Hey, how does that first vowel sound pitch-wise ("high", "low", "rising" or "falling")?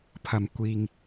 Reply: low